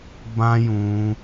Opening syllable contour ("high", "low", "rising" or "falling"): high